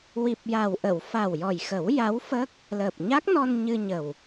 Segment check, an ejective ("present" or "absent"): absent